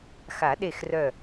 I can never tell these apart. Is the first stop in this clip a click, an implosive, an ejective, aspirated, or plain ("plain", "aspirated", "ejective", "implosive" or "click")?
implosive